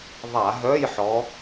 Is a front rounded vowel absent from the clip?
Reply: no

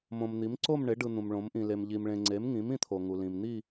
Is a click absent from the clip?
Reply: no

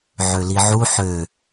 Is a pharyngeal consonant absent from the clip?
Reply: no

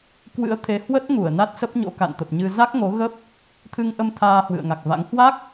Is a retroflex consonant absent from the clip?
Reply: yes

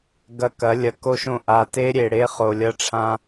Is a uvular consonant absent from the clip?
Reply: no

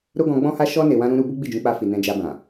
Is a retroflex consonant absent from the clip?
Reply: yes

